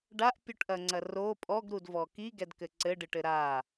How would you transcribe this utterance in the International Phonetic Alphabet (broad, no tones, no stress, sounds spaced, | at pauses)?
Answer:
ɖ a ʔ pʲ u ʈ ʔ ɐ ŋ͡ǀ ɐ r o pʼ ɔ ɡ ɾ u d v ɔ k i ɡ ɛ d k ɘ ǀ ɘ ɖ ɨ ʈ ɘ ɾ a